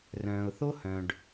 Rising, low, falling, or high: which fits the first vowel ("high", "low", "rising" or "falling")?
low